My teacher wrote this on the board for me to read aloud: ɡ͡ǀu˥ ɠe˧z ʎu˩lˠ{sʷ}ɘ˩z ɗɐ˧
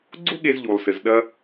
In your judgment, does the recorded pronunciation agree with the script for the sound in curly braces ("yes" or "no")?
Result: no